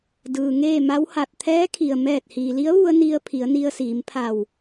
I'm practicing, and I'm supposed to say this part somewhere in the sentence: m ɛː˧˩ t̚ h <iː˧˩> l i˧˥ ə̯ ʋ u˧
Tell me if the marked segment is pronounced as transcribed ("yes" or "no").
no